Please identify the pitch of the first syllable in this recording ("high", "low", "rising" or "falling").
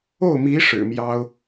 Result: falling